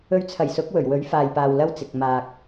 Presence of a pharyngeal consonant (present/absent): absent